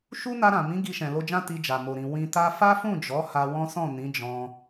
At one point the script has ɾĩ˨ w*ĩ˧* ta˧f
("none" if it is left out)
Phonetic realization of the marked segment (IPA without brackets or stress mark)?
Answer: ĩ˧